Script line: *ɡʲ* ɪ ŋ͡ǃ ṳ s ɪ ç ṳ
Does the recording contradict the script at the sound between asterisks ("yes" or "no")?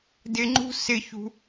yes